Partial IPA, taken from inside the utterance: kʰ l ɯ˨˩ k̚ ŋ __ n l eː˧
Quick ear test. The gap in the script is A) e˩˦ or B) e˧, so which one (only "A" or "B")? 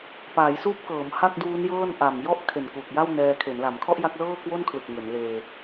A